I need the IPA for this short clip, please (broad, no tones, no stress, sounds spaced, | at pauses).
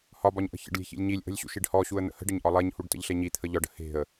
h ɒ b ɒ ɲ ʔ ə̤ ç ə̰ ɖ lʲ e̤ ç ḭ lʲ ɲ i lʲ ʔ ə̤ lʲ ɕ ṵ ʃ i ɖ h ɔ ɕ u ə̯ n̪ ə̰ h ə̤ ɖ ə ɲ ʔ ɒ lˠ e ɲ h u ɖ t ə̰ ʎ ɬ e ɲ i t̪ʰ ə ʎ ɒ ɖ ə̤ h e̤ ə̯